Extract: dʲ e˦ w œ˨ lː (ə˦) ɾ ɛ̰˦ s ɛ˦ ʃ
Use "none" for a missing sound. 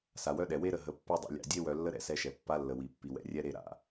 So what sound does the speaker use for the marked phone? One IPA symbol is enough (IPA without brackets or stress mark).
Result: ə˦